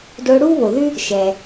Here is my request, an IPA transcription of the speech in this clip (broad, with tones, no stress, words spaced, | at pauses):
dʊː˧ ɽuː˥βo˩ðʉ˥ | ʃɛ˩